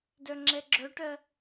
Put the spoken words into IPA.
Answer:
d œ ŋ͡ǁ ɛ ɡ͡ǁ œ ʈ ɜ

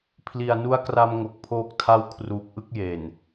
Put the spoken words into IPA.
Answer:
pʰ l i˨˩ a̯ n u˦˥ a̯ k r a˧ m ŋ o˨˩ k̚ pʰ oː˦˥ k̚ tʰ a˥˩ w kʰ r uː˨˩ k̚ ʔ ɯ˥˩ k̚ j e˨˩ n

